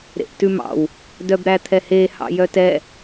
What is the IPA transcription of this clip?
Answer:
ɾ ḛ ʔ t ʉ m ɑ̰ w | d œ b ɾ æ t̪ʰ ɛ h e h ɑ̰ j œ t ɛ

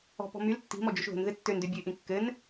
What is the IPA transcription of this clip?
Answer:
ɔ̤ p ɔ̤ m y l tː i̤ m ɔ d͡ʒ y ʃ ð o̤ n ð ɘ tː ø n d ø bʲ ə ɪ̯ ʔ ĩ kː ɘ n

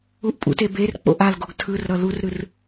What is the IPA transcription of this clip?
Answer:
u ʔ pʼ ṵ t e b e r k͡p o̰ ʔ a l ɡ o ɡ tʰ ɯ r ɾ ʌ l u r ɾ ɯ r

